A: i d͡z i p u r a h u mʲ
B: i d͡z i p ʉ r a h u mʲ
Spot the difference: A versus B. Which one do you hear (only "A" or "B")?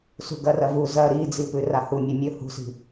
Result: B